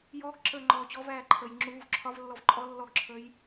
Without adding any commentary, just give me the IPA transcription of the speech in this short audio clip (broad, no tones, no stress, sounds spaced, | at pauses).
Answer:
j ɔː ɡ ǁ əː ŋ͡ǃ ɔː t͡ɕ ɔ v æː ǃʰ əː j ŋ͡ǁ uː v ǁʰ ɒ v lː ɔ v ǃʼ ɔ lː ɔ ɡ ǁʰ əː j